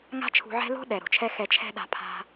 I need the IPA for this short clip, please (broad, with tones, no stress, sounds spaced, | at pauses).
ŋ a̤˦ t͡ʃʰ ṳ˧ ʕ ɛ̤˦ l o̤˦ ɗ ɛ˨ ɾ o̤˨ t͡ʃʰ ɛ˧ x ɛ˨ t͡ʃʰ ɛ̤˧ ɗ a̤˧ pʰ a̤˧